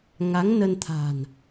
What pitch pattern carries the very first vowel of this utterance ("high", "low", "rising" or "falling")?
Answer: rising